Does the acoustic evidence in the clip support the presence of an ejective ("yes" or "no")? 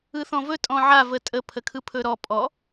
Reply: yes